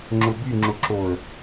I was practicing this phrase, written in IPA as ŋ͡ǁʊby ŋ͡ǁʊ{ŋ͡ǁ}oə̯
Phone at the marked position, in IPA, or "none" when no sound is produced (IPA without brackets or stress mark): ǁ